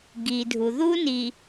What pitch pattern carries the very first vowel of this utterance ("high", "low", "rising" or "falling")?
low